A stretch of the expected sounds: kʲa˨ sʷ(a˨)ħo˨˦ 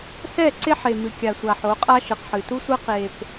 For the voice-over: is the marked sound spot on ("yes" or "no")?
yes